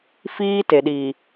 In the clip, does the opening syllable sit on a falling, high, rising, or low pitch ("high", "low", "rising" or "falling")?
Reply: high